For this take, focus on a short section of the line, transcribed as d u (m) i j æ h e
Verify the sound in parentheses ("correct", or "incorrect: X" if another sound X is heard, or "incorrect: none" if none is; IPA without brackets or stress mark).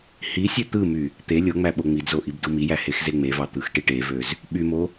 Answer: correct